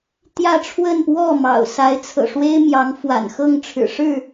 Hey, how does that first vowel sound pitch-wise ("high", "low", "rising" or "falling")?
falling